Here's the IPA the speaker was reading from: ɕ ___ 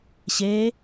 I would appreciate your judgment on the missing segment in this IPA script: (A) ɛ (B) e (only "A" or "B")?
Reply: B